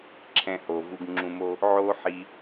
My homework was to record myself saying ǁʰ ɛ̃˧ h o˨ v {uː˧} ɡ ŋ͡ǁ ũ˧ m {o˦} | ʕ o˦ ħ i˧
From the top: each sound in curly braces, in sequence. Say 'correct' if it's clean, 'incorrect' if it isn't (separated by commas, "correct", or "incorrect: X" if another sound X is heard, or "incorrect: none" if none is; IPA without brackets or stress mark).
incorrect: u˧, correct